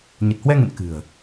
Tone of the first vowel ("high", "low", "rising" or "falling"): low